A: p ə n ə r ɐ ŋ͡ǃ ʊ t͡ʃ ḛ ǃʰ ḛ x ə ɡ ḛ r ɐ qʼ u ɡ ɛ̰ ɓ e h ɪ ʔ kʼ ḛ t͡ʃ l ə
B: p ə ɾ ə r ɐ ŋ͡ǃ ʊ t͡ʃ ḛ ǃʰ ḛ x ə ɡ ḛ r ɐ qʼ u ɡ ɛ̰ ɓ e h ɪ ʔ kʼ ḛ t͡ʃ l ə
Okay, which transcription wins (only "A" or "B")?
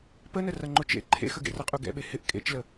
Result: A